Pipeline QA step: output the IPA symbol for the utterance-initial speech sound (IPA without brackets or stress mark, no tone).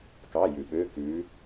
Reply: k